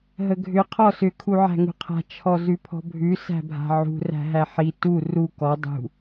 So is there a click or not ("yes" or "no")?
no